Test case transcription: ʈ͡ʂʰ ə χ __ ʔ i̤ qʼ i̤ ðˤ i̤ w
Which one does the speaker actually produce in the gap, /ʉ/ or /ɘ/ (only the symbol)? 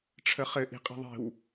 ɘ